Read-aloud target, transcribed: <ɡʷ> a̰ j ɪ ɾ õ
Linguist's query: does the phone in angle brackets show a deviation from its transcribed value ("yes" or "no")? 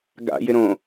yes